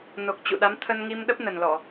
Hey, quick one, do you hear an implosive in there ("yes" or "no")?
yes